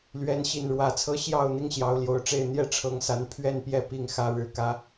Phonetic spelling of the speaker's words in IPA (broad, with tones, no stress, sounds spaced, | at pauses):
l ɥ ɛ˨˦ n ɕ i˨˩ n ɻ w ä˨˦ t͡sʰ ɤ˦ ɕ j ɑ˥˨ ʊ̯ n̪ i˦ ŋ ɕ j ɑ˨˦ ʊ̯ l j o˨˩ ʊ̯ ʈ͡ʂ e˥˨ ɪ̯ n̪ j ɛ˥˨ ʈ͡ʂʰ ɤ˨˦ ŋ s a˨˦ n pʰ ɥ ɛ˥˨ n p j ɛ˥˨ p i˥˨ ŋ x ä˦ ɻ ɻ̩˨˦ k ä˦